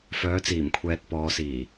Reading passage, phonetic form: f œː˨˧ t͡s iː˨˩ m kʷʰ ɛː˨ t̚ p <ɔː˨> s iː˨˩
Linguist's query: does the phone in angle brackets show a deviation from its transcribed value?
no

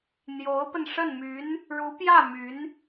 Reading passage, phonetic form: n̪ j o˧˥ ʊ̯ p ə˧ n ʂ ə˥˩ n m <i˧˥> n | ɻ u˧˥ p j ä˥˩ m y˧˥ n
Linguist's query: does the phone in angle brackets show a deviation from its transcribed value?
yes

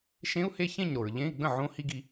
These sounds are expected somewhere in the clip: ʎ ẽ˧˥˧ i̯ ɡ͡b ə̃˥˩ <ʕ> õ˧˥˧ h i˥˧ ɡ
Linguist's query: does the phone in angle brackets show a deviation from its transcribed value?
no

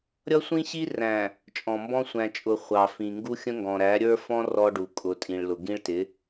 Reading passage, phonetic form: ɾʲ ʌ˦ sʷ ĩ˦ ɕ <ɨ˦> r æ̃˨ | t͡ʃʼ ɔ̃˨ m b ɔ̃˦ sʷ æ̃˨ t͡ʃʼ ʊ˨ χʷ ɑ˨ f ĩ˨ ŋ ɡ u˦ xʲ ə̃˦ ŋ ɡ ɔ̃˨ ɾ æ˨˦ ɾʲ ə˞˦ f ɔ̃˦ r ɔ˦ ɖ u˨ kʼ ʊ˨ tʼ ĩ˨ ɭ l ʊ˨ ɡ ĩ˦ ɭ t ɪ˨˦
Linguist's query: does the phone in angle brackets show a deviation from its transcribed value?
yes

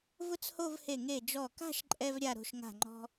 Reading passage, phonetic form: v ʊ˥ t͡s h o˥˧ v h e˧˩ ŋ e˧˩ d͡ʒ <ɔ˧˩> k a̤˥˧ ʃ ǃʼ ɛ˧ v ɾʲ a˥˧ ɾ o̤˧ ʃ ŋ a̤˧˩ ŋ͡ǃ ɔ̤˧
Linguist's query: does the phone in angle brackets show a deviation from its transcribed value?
no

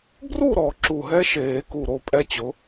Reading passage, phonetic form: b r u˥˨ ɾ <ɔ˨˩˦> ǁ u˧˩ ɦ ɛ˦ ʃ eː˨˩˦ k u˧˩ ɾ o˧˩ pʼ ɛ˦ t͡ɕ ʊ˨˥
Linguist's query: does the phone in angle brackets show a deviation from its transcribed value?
no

